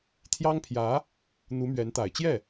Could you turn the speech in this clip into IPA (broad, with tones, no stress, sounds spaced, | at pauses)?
t̪ʰ j ɑ˥ ŋ pʰ j ä˧˥ | n̪ u˧˥ m ɥ ɛ˧˥ n t̪ a˨˩ ɪ̯ t͡ɕ j ɛ˥˩